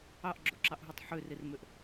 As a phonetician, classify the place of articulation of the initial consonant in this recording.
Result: glottal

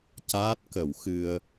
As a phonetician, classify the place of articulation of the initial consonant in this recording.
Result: palatal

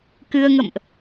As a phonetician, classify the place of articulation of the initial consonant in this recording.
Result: velar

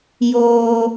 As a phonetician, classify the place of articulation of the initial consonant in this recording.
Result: palatal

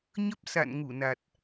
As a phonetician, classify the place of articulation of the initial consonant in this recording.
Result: palatal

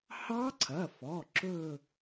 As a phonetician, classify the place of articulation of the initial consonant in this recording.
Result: glottal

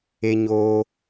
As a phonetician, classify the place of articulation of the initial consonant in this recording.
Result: palatal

